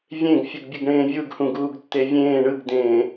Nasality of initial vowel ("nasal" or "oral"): nasal